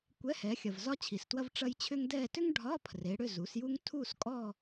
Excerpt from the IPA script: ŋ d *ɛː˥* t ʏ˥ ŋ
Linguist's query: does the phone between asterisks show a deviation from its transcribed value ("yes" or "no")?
yes